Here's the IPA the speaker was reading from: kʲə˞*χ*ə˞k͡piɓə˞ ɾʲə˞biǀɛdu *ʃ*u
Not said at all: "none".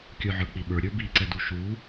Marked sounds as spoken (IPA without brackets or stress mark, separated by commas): ʕ, ʃ